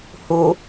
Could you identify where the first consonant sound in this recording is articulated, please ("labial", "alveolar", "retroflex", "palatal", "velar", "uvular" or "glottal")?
glottal